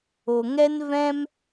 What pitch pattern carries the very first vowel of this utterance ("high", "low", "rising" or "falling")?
low